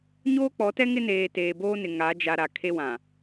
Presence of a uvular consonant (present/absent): absent